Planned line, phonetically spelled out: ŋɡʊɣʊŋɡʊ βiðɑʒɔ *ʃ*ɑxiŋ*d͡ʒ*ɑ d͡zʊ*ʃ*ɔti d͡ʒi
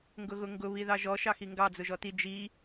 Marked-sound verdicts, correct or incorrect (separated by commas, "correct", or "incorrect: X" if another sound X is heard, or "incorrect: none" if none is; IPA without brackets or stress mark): correct, incorrect: ɡ, incorrect: ʒ